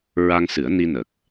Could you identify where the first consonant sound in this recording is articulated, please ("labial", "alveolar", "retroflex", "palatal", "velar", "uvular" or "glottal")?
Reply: alveolar